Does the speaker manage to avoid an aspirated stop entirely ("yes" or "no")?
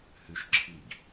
no